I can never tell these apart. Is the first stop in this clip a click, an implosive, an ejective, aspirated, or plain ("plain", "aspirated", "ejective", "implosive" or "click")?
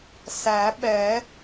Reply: implosive